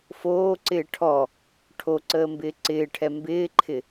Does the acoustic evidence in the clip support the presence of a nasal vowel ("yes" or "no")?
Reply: no